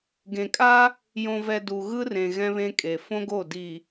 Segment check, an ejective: present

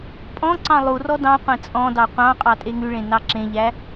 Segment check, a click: present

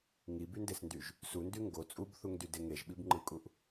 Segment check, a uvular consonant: absent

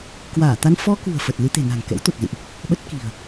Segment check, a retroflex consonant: absent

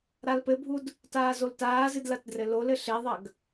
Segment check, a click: absent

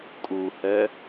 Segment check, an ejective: present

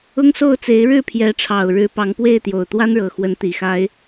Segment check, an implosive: absent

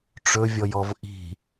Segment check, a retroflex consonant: present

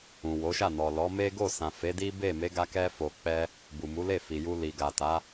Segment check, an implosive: absent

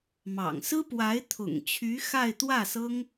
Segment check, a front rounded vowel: present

